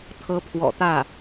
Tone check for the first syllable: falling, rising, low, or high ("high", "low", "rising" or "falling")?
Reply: rising